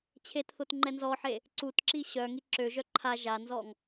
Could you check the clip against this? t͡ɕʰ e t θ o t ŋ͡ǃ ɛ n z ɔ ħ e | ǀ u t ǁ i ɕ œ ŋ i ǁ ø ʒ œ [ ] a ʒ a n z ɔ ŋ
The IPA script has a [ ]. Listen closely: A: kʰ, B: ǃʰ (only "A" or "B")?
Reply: B